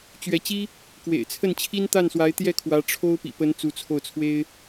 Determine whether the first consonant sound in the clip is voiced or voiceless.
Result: voiceless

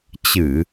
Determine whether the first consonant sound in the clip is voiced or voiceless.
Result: voiceless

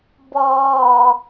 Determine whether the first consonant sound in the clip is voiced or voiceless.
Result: voiced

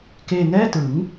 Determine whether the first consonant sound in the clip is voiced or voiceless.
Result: voiceless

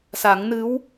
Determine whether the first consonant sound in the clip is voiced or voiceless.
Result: voiceless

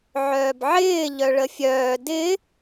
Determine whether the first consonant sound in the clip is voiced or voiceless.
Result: voiced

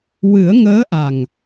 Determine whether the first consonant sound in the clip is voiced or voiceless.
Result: voiced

